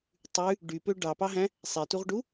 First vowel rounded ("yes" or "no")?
yes